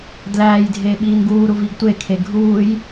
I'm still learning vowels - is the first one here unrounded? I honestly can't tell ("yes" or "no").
yes